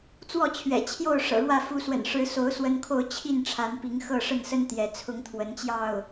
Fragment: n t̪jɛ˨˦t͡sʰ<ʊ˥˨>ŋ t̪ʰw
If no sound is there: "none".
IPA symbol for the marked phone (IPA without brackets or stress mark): ʊ˦